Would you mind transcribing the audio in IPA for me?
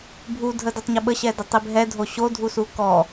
bʱ u dʱ ə d ø tˤ ɲ ə ɓ ə ɕ ɛ d ə tˤ i b ɦ ɛ dʱ o ɕ o dʱ u s u k ɔ

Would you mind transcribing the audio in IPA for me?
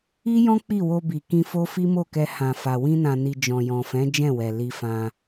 i˦ j ɔ̃˦ k͡p i˦˨ w o˧ b i˨ k ĩ˧ f o˦ f i˦ m o˦˨ k ɛ˧ h ã˨ f a˨ w ĩ˧ n ã˨ n i˨ d͡ʒ ɔ̃˨ j ɔ̃˨ f ɛ̃˨˦ d͡ʒ ɛ̃˦˨ w ɛ˨ l i˧ f ã˧

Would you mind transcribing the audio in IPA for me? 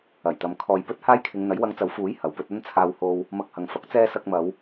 ɐ˨˩ j t̪ ɐ˨ m kʰ ɔː˨ j p ɵ˥ t̚ h aː˥ j kʰ ɪ˨˧ ŋ n̪ ɐ˨˥ j w ɐ˧ ŋ t͡s ɐ˨˥ w f uː˨˥ j h ɐ˨ w p ɵ˥ t̚ ɐ˥ n t͡sʰ aː˧ w h o˧ w | m ɐ˧ k̚ h ɐ˨ ŋ f ɐ˨˥ k̚ t͡s ɛː˥ s ɐ˧ k̚ m ɐ˨˧ w

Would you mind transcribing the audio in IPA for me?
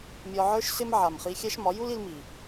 mʲ ɒ˧ ʕ ə˞˦ ʃ s ɪ˦ m ʕ a˨ m χ i˧ xʲ æ˦ ʃ m ɒ˨˦ j u˦ l i˧ l m i˨

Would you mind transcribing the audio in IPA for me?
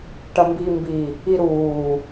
ʈ ɐ m b iː m b i | i ɾ uː

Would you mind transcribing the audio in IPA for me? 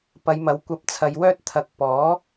p ɐ˨˧ j m ɐ˨˥ w kʷ ɐ˧ p̚ t͡sʰ ɐ˨˧ j w œː˥ t̚ t̪ʰ ɐ˨ k̚ p ɔː˨˥

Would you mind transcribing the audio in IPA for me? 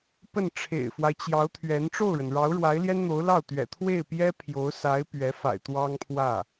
p ə˥˩ n ʈ͡ʂʰ ḛ˨˩ ɪ̯ f w a˦ ɪ̯ t͡ɕ j ɑ˧˥ ʊ̯ t̪ʰ ɥ ɛ˧˥ n ʈ͡ʂ o˥˩ ʊ̯ ɻ ə˩ n ɻ ɑ˧˥ ʊ̯ ɻ w a˧˥ ɪ̯ l j ɛ˥ n n̪ o˧˥ ʊ̯ l ɑ˥˩ ʊ̯ t̪ ɥ ɛ̰˨˩ t̪ʰ w e˥˩ ɪ̯ p j ɛ˥ pʰ j o˧˥ ʊ̯ s a˧˥ ɪ̯ p ɥ ɛ˧˥ f a̰˨˩ ɪ̯ t̪ w ɑ˥ ŋ pʰ w ä˥˩

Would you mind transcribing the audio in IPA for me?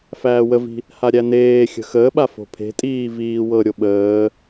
f æː w ə v i̤ | h a ɾʲ æ n eː xʲ ə̤ x əː ɓ a f o̤ pʰ e̤ tʼ iː v iː w ɤ ɾʲ o ɓ əː

